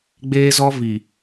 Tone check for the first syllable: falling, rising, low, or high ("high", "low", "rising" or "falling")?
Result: high